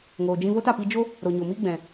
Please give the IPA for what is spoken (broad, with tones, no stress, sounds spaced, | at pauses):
ŋ oː˨ d͡ʒ ĩ˧ v o˦ t a˨ p i˧ d͡ʒ o˦ | ɾ o˨ ɲ o˨ m i˦ ɡ͡b ɛ̃˨